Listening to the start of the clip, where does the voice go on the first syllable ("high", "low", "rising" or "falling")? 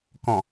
low